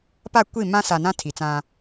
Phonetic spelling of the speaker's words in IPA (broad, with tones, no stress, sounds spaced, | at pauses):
p a˦˨ kʷ i˦˨ m ã˦ s a˨ n ã˦ tʰ i˨ t͡s ã˦